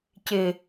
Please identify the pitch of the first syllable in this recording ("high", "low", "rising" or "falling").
low